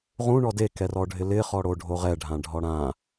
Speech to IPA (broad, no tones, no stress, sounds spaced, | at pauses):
ʁ ũ ɳ ɔ d e k ɛ r ɔ ɖʱ ɪ l ɪ χ ɔ ɽ o ɖʱ o ʁ ɛ ɖʱ ã ɖʱ ɔ ɽ ã